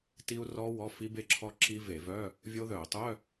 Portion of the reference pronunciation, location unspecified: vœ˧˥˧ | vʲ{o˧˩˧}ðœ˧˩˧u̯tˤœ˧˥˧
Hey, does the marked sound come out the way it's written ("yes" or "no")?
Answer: no